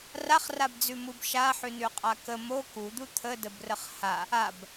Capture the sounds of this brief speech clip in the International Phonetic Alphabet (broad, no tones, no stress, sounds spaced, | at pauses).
r a χ r a b d͡z ʉ m u b ʃ a ħ ʉ n ʉ qʼ a k ə m o k u d̪ u t̪ʰ ə d ə b r ə χ h a | a b